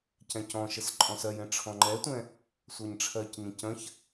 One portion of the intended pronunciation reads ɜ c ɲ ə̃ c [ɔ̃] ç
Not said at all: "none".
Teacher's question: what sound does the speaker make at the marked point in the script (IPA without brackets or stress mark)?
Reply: ə̃